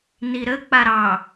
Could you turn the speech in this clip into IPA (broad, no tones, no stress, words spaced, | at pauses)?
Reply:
niɾə k͡paɾɑ